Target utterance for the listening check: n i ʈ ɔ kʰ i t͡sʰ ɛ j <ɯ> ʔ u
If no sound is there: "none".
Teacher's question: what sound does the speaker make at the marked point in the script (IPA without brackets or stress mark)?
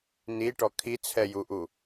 u